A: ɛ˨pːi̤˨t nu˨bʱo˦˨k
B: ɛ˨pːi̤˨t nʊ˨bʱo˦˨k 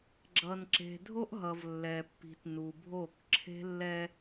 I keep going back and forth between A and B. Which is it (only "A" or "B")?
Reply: A